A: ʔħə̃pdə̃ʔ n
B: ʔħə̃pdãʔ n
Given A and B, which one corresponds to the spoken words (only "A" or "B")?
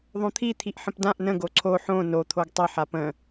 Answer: B